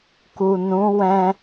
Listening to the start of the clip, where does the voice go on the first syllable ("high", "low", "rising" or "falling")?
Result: low